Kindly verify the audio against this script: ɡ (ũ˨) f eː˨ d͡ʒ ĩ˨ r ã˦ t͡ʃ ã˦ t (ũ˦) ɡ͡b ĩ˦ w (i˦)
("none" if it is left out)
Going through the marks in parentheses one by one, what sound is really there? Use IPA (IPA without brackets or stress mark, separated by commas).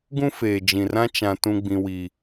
ũ˦, ũ˦, i˦